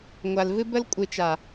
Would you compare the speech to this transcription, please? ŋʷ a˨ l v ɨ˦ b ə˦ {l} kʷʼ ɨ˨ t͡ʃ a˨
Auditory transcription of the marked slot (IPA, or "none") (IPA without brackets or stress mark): l